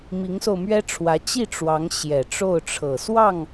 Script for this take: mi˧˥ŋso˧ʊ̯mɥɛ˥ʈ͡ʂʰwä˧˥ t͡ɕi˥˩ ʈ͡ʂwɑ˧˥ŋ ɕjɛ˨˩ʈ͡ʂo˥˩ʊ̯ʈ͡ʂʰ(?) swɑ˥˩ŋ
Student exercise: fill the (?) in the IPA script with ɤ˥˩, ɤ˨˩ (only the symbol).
ɤ˨˩